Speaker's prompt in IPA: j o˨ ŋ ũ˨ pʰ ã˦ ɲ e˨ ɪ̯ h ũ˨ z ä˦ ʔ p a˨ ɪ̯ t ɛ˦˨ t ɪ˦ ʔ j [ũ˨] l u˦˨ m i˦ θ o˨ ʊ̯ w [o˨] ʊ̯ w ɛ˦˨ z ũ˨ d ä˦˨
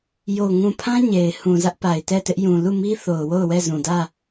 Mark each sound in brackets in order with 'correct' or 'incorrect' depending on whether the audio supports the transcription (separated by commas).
correct, incorrect